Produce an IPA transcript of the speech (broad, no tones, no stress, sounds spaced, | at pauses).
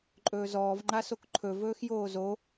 ǃʼ ɵː z ɔː v ŋ͡ǃ a s o k ǃʰ ɵ v ɵː x j oː z o